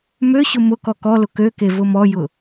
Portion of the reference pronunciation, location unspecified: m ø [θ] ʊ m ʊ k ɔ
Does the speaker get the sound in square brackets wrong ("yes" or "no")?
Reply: yes